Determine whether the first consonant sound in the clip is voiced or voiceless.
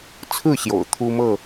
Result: voiceless